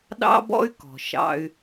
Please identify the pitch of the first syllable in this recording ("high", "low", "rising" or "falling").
high